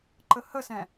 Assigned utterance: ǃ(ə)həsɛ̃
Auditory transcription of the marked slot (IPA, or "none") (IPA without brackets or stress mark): ə